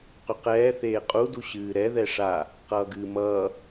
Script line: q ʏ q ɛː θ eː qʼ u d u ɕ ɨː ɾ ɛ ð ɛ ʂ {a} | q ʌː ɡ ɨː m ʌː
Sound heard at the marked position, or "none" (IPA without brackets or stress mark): a